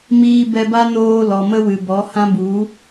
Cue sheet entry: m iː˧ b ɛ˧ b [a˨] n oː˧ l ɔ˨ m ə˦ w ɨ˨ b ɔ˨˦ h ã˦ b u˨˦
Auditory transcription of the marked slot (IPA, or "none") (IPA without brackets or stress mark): a˦